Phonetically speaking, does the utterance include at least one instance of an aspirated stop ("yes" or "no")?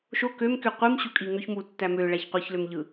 no